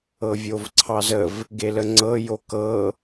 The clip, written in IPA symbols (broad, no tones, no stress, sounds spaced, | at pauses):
ɤ vʲ o v ǀʰ ɑ z ə v | ɡ e l ə ŋ͡ǀ ɤ j o k ɤ